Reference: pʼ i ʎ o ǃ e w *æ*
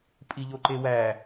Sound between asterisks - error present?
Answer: no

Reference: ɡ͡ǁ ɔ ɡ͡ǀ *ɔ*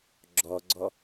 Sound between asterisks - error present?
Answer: no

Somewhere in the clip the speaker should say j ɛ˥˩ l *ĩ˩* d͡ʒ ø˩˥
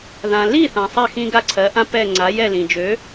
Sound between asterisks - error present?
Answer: no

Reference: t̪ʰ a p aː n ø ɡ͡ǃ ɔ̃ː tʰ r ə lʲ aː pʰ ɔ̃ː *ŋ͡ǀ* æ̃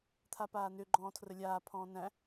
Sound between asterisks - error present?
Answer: yes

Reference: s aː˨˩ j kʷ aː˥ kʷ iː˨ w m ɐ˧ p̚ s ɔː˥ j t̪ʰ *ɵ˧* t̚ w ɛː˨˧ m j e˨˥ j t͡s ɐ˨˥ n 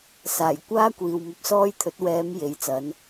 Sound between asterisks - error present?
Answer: yes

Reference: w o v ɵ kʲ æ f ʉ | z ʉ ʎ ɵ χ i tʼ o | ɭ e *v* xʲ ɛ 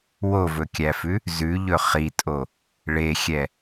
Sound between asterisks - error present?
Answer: yes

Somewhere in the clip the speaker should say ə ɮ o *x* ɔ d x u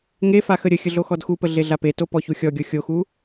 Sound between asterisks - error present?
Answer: no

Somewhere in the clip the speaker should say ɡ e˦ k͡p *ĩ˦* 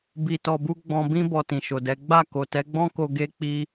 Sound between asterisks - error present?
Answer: yes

